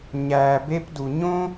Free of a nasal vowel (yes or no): no